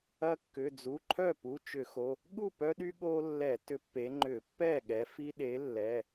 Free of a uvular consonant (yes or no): yes